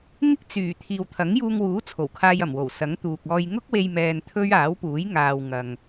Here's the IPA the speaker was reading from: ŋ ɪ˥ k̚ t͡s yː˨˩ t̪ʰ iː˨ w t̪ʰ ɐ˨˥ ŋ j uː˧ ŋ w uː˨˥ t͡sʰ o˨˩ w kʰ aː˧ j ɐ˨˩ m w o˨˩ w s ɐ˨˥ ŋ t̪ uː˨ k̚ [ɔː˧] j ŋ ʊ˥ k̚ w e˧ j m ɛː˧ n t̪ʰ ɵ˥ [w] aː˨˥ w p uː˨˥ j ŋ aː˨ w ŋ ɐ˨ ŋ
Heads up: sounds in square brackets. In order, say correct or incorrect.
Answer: correct, incorrect: ɥ

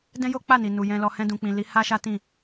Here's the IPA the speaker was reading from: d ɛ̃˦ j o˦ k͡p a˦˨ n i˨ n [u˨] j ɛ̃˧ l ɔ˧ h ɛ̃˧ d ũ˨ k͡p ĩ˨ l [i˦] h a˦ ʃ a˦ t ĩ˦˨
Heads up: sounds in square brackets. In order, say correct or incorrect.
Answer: correct, incorrect: i˨˦

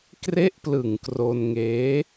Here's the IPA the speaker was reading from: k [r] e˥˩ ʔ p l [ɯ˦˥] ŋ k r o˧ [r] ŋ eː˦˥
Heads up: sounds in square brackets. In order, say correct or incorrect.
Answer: correct, incorrect: ɯ˨˩, incorrect: n

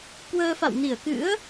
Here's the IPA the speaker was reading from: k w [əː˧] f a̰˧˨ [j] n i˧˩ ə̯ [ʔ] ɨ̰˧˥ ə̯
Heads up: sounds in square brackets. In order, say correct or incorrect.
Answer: correct, incorrect: w, incorrect: k

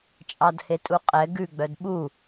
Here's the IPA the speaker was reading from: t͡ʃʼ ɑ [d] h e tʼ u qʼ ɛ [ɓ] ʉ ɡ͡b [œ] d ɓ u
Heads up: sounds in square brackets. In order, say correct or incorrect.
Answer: correct, incorrect: ɡ, correct

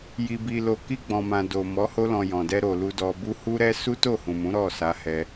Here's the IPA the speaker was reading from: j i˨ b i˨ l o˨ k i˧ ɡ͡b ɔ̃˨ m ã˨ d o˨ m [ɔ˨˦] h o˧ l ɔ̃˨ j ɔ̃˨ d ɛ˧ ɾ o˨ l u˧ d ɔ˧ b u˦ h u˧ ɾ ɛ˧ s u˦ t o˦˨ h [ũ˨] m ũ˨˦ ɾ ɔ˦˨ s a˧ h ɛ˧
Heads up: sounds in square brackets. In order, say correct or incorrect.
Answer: correct, correct

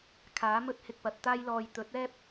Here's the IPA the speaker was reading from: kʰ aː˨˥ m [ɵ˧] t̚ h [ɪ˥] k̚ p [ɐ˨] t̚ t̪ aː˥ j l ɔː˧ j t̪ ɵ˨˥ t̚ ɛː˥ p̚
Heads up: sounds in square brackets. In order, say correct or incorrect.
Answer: incorrect: ɵ˥, incorrect: ɪ˧, correct

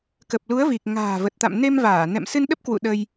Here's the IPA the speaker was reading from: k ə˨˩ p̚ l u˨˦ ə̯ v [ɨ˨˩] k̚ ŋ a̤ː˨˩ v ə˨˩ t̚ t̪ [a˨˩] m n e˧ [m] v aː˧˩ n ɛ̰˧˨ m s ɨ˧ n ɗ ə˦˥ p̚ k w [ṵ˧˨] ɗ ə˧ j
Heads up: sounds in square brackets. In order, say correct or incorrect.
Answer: incorrect: i˨˩, incorrect: a̰˧˨, correct, correct

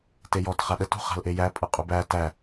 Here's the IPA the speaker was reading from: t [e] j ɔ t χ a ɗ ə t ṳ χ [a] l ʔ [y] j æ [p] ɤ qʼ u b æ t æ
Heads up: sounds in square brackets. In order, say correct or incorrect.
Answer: correct, incorrect: a̤, incorrect: e, incorrect: pʼ

